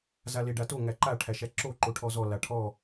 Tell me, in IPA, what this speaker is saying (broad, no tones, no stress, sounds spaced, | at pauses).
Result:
z a l e ɖ a t o ŋ æ ǃ a ʈʰ æ ʃ æ ǁ o ǃ o ʈʰ ɔ z ɔ l a ʈʰ ɔ